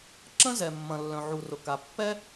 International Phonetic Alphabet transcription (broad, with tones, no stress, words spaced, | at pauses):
ǁə̃˥zɛ˩ mːɐ̃˩lːœ̃˩ʕu˩rʊ˩ ka˩pːɛ˥